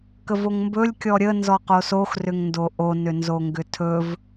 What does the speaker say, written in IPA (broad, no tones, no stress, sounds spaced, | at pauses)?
k ə v o ŋ m b ɵ lʲ kʲ ɔ ɾʲ ə n z ɔ q o s o x r ʏ ŋ n d o ʔ o n ʏ n z o ŋ ɡ ʏ tʰ ɵ v